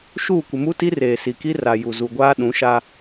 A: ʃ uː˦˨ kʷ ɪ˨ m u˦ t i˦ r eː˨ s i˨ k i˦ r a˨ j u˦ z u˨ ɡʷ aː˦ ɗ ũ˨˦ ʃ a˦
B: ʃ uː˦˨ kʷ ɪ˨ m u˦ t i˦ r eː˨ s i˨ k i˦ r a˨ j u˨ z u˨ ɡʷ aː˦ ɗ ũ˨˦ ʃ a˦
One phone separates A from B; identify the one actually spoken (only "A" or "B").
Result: B